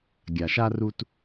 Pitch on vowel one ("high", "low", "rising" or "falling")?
low